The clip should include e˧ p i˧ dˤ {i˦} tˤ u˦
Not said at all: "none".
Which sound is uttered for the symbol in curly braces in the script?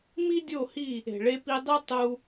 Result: i˦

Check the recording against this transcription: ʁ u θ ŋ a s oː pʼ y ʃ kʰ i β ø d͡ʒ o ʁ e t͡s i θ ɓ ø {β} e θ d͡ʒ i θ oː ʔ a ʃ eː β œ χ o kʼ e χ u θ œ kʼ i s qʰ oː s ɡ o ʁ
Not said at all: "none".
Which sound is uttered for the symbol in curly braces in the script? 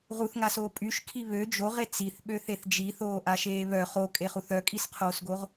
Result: θ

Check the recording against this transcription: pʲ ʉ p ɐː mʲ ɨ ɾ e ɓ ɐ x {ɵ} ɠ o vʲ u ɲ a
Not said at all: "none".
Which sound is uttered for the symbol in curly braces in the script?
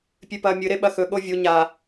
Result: ɵ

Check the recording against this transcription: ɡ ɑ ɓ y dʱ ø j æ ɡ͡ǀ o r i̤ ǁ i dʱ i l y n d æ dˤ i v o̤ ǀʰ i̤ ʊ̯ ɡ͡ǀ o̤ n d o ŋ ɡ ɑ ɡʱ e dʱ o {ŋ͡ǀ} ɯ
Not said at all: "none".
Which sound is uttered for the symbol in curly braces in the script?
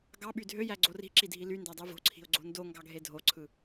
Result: ǀʰ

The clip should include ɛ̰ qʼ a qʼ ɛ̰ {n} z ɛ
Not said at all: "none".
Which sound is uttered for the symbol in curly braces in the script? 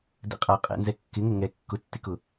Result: n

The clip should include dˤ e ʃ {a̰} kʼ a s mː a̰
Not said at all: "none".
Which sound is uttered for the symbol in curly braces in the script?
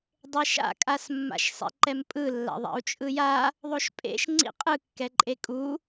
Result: a̰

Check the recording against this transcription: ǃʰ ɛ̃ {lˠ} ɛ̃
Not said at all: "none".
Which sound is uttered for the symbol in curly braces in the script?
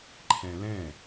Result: l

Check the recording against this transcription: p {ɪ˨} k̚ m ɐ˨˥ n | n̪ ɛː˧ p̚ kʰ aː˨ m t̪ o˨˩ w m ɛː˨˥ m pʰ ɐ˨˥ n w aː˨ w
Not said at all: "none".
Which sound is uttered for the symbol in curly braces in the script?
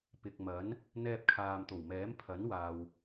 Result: ɪ˨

